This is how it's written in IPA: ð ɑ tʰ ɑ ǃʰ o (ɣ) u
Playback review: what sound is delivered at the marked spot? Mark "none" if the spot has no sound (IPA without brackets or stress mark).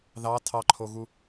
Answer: ɣ